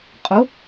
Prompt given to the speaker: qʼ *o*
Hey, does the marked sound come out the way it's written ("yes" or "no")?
yes